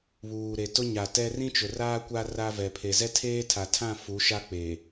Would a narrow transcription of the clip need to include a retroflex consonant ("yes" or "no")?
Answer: no